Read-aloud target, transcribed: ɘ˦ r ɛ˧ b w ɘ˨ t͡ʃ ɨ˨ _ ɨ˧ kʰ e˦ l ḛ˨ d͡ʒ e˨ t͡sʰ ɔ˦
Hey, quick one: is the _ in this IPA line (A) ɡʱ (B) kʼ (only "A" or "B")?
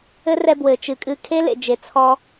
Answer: B